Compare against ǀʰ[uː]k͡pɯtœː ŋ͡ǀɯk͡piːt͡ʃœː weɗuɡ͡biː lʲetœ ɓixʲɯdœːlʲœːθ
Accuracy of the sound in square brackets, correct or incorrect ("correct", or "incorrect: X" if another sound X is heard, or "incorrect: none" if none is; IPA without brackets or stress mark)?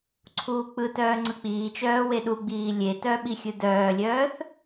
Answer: correct